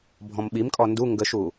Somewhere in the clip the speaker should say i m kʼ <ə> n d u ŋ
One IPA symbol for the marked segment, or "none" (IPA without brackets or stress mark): ɔ